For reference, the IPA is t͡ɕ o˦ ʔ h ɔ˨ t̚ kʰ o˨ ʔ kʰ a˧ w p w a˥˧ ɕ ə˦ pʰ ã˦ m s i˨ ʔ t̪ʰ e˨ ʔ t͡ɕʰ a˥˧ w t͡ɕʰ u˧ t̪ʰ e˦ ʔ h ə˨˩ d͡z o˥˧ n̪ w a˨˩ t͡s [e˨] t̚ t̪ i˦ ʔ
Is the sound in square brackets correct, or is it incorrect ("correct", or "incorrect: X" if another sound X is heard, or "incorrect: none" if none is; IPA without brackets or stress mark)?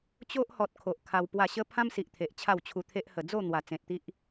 incorrect: ẽ˨